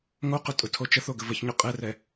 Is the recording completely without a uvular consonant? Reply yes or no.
no